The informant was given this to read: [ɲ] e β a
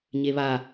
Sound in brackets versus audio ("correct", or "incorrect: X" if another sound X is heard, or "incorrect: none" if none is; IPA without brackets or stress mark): correct